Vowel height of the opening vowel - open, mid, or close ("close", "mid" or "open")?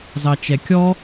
open